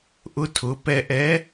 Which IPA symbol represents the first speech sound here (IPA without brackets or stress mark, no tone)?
ʔ